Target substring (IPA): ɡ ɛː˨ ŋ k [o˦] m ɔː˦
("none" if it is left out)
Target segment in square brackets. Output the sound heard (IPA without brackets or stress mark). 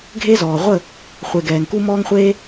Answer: u˦